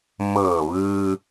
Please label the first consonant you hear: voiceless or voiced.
voiced